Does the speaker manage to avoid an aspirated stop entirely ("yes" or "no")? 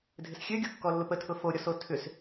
no